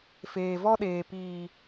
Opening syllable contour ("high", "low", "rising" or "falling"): low